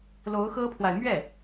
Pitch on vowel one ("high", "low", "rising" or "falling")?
rising